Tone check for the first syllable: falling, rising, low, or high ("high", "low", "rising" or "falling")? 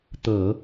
low